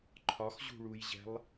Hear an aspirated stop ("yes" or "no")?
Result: yes